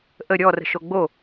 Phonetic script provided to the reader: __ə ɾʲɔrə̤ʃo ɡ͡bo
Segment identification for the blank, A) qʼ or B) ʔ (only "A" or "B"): B